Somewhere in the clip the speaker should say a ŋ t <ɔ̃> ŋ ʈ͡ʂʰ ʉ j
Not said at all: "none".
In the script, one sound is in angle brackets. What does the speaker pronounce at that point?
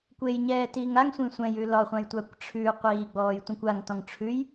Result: ɔ̃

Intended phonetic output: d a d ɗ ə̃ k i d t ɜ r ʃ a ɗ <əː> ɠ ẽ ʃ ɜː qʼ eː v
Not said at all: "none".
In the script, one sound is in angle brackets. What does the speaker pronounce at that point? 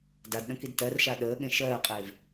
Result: əː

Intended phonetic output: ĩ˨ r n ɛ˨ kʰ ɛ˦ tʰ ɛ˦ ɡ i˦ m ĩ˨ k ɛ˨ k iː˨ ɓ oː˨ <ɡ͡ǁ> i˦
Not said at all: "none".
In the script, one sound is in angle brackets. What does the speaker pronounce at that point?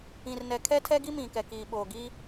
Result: ɡ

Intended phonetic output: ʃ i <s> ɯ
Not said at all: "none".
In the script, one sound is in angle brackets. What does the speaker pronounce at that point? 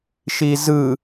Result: z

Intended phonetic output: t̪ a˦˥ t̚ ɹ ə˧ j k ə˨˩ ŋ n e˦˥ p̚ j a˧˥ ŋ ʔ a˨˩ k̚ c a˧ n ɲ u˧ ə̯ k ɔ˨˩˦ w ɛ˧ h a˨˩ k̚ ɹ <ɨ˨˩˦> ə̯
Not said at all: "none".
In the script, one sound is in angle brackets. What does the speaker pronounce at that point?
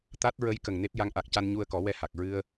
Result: ɨ˧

